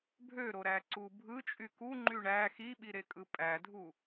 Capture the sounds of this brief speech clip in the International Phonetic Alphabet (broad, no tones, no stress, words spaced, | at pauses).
bʱøɾoɾæǀu bʱɯt͡ʃʼy kuŋ͡ǃy ɳæ xiɓiɾekʼɯ pʼædʱu